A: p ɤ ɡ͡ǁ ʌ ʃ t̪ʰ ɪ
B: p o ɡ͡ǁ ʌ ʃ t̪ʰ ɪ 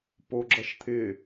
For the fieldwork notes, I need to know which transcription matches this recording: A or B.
B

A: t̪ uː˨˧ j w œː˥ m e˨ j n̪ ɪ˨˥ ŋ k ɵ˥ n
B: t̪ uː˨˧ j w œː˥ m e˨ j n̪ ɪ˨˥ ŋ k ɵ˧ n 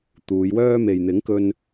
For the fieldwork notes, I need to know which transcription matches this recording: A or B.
B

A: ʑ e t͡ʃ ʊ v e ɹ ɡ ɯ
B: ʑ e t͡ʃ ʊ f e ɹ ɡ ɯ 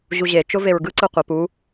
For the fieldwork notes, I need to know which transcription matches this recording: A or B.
A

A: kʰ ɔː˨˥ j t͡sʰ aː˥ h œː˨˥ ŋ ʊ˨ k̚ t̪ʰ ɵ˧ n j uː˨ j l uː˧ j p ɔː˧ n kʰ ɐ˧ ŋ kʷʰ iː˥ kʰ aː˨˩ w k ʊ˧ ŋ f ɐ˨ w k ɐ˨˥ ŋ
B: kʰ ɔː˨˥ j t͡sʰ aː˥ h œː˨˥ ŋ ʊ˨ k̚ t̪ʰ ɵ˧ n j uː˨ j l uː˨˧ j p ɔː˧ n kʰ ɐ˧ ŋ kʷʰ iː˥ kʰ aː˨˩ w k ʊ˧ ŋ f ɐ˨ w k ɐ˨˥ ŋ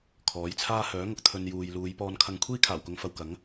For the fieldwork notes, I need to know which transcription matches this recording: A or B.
B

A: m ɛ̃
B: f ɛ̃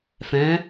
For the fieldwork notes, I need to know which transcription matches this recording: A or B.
B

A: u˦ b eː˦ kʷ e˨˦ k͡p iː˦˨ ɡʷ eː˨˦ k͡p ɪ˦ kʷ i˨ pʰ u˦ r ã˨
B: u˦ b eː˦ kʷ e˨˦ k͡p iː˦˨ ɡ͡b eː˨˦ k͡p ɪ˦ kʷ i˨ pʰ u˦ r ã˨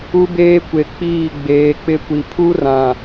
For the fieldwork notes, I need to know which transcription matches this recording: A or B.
B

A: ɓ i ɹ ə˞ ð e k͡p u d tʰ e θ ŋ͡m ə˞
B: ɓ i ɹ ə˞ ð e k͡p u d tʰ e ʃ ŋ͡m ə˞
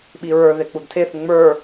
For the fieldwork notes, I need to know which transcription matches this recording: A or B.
A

